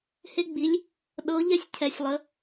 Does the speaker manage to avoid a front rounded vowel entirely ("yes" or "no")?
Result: yes